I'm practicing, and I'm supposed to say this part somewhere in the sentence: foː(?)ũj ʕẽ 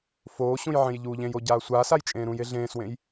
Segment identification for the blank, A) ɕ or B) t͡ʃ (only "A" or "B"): A